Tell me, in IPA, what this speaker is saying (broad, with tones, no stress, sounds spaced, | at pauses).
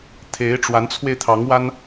t̪ʰ e˧˥ ɪ̯ ʈ͡ʂ w a˧˥ n t͡sʰ w e˧ ɪ̯ t̪ʰ ɑ˧˥ ŋ w a˥ n